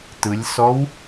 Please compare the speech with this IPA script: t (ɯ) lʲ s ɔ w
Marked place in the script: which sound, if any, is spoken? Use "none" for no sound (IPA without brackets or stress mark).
ɯ